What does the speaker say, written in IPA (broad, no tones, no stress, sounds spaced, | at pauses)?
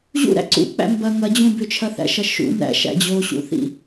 ʑ ṵ ɾ æ̰ ǀ ṵ k͡p æ̰ m b ɐ ŋ ɐ d͡ʑ ũ b ʏ t͡ʃʰ ɐ θ æ̰ ʃ ɐ ʃ ṵ n æ̰ ʃ æ̰ d͡ʑ o ɕ ṵ θ ḭ